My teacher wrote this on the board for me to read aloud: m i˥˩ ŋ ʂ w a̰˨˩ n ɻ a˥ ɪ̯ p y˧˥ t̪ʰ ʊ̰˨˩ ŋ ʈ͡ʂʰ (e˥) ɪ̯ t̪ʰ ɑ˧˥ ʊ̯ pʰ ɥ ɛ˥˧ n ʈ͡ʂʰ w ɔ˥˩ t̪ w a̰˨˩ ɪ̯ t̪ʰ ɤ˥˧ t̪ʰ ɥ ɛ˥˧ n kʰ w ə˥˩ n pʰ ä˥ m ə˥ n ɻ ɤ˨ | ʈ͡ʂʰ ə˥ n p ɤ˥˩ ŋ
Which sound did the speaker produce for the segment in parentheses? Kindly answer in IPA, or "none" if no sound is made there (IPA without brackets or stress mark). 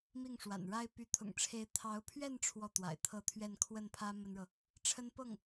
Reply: e˧˥